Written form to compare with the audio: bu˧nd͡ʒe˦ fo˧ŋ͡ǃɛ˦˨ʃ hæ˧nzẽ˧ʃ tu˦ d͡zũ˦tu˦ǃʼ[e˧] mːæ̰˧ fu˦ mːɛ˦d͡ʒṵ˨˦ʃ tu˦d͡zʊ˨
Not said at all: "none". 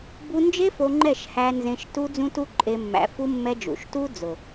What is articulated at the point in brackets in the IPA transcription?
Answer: e˧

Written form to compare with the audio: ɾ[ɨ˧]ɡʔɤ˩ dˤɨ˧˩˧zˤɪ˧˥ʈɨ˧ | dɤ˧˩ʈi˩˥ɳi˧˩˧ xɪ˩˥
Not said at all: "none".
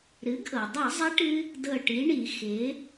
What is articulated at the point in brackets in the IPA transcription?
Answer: ɨ˩˥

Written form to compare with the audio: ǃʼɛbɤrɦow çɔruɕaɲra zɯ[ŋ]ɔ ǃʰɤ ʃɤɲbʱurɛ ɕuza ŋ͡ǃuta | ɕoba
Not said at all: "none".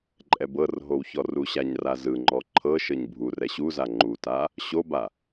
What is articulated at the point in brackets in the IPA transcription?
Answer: ŋ͡ǃ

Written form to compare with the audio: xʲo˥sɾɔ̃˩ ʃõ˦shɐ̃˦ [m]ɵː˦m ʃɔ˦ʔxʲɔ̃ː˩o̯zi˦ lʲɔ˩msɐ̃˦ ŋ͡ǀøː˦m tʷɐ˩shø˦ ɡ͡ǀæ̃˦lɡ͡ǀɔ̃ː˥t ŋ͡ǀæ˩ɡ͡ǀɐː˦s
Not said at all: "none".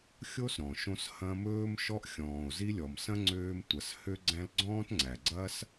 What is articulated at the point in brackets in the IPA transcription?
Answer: m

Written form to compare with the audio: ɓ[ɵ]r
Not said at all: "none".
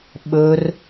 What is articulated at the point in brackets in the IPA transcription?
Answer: ɵ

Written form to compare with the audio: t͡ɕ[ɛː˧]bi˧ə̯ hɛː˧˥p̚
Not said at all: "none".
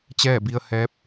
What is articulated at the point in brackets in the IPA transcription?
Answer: ɛː˥˨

